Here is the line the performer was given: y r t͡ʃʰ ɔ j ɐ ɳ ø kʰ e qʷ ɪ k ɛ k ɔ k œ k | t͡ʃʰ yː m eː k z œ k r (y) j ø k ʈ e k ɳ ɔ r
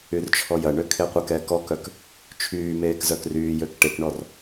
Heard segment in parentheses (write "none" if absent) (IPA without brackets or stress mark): yː